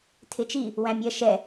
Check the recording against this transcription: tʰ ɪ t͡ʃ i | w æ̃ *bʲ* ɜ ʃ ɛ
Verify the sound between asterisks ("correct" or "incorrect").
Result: incorrect